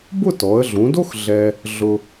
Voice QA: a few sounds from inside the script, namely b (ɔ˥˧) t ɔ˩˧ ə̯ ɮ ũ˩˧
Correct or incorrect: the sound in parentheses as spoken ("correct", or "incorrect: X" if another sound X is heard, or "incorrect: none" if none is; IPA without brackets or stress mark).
incorrect: ʊ˥˧